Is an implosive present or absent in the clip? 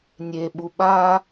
present